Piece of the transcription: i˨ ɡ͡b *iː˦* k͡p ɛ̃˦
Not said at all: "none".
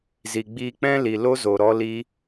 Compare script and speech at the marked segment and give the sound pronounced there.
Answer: iː˧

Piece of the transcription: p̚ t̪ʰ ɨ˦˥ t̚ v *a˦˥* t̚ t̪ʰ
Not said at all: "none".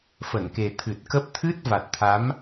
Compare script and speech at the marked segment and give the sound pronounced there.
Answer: a˨˩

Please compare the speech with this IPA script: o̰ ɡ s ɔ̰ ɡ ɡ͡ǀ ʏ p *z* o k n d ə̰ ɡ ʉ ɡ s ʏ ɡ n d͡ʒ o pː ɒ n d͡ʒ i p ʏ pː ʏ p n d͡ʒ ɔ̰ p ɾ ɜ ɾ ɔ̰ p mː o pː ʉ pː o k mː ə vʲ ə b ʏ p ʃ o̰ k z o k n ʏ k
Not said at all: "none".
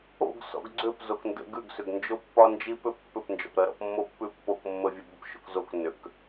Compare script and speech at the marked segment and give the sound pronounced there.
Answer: z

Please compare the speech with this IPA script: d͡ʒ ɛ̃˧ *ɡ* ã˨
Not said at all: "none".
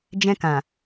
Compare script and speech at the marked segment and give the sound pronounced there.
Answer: k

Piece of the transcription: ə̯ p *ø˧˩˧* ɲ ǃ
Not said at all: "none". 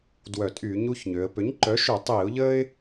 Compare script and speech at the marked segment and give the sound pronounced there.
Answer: ø˩˥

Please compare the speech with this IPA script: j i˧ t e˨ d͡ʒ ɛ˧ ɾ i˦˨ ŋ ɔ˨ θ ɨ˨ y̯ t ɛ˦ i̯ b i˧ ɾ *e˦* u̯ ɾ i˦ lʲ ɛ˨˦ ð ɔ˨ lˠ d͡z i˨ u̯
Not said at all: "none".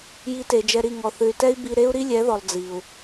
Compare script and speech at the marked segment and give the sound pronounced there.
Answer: e˦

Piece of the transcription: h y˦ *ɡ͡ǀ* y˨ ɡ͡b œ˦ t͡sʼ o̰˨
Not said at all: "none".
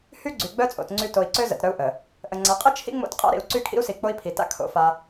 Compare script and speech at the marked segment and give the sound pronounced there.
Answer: ɡ͡ǀ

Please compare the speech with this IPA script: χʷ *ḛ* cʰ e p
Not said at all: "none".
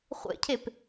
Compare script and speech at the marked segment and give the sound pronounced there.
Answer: ḛ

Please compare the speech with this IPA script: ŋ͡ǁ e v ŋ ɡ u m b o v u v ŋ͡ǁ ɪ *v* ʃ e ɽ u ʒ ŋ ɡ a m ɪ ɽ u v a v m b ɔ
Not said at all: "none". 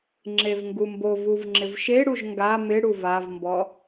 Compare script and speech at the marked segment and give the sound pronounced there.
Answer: v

